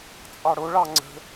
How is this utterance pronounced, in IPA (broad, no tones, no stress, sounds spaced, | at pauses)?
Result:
t͡sʼ ɑ ɽ o ɭ ɑ ŋ͡ǀ ə̤